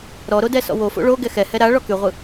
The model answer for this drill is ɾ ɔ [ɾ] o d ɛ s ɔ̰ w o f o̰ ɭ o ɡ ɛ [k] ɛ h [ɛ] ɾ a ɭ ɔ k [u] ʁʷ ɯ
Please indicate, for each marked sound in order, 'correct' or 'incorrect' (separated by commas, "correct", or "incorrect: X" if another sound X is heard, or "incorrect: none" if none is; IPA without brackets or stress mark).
correct, incorrect: x, correct, incorrect: y